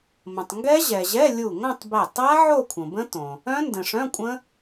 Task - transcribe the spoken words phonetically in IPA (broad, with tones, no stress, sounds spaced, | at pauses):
m ə̃˩ tˤ ŋ ɡ ɛ˦˥ ʑ ɛ˩ ʑ ɛ˧˥˧ lʲ u˧˩ ŋ õ˥˧ tˤ b ɛ˧˩ tˤ a˦˥ ʕ o˥˧ kʷʰ ə̃˩ b ə̃˦˥ t õ˩ | œ̃˦˥ n d ə̃˩ ʂ œ̃˧˥˧ kʷʼ ə̃˦˥